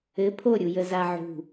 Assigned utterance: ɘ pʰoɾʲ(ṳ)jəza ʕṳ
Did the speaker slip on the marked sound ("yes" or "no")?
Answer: yes